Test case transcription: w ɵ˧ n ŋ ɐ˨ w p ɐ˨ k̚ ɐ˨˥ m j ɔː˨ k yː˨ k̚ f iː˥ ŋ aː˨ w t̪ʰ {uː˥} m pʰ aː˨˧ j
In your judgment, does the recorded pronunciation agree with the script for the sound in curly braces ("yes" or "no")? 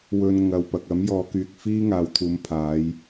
no